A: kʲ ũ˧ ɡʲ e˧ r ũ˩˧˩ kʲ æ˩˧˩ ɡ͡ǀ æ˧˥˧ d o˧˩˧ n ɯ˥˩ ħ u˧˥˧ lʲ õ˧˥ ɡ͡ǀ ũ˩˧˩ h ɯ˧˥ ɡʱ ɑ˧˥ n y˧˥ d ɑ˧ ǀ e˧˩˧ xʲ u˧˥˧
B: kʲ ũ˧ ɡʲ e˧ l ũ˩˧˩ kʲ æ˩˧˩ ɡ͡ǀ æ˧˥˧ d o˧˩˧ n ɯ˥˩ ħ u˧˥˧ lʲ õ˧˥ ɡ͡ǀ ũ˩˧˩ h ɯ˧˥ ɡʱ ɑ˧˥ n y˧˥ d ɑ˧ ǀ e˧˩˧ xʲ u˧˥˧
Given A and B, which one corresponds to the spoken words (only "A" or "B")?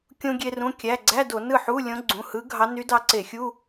A